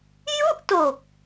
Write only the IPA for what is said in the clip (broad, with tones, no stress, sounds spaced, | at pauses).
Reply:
j u˥˩ ʔ t o˨˩ k̚